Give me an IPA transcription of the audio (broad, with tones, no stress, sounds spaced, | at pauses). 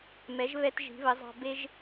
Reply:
m ɛ˩˥ ʒ β ɛ˧ t ʒ i̤˩˥ β ə˩˥ zˤ ɑ̤˧ b e˧ ʒ